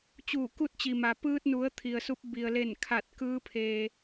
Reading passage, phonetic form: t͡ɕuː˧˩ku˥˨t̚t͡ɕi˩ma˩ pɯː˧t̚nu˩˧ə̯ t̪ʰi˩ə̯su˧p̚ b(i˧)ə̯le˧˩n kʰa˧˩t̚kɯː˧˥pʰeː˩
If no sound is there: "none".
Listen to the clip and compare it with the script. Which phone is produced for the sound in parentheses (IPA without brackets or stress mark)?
i˩